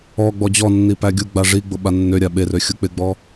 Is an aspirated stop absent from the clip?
yes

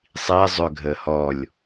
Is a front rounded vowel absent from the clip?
no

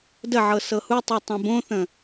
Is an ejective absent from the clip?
yes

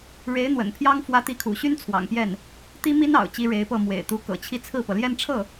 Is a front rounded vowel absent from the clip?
no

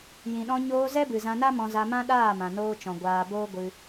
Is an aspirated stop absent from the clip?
yes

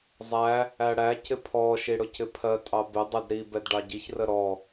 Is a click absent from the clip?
yes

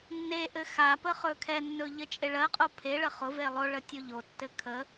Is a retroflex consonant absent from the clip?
no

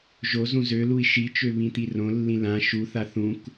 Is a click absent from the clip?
yes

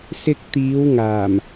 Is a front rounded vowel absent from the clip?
yes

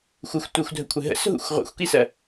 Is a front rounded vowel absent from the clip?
yes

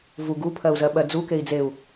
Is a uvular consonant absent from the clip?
yes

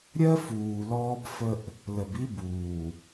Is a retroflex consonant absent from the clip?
yes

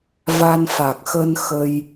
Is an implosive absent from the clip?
yes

